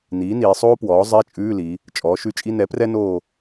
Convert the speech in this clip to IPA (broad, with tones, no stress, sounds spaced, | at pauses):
n iː˩˥ n iː˩˧ sˤ oː˥ p w ɔː˩˥ zˤ ɛ˧˥˧ t͡ʃʼ ʉː˧˥˧ l i˩˧ | t͡ʃʼ ɔː˩˥ ʃ ʉ˧˥˧ t͡ʃʼ i˥ n ɛ˩˥ p r ɛ˥ n oː˦˨